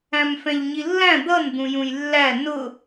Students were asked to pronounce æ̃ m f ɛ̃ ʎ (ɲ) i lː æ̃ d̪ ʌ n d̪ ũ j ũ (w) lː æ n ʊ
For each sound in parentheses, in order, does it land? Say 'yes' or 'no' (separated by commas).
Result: yes, no